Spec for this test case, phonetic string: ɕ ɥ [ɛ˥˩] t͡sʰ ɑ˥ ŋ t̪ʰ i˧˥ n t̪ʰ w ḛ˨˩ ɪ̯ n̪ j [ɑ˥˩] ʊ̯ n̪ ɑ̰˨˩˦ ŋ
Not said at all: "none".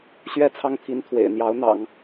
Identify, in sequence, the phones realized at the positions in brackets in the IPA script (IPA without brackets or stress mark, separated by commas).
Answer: ɛ˥˩, ɑ˧˥